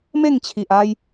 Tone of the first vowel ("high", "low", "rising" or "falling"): falling